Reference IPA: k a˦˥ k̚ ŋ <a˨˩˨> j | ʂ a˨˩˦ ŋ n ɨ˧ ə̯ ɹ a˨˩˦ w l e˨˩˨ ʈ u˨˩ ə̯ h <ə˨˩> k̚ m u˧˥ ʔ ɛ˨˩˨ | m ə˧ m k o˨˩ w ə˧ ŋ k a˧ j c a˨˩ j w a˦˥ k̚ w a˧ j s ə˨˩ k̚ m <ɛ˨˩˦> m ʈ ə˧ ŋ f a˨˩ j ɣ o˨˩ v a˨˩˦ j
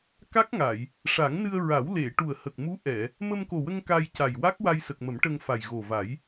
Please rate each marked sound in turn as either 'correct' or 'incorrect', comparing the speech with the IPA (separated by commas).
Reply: correct, correct, incorrect